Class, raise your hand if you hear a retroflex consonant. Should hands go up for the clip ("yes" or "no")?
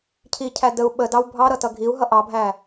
no